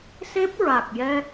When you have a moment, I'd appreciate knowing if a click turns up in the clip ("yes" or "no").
no